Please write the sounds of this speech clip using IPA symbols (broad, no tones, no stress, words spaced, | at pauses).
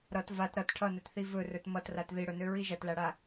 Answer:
ɾʌt vat ɾʌt ʈʰʌnɵt θivɵrɵt mʌtrat ðiɽɵnø ɹiʒɐtlaɽa